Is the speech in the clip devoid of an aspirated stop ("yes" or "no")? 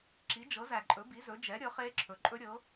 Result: no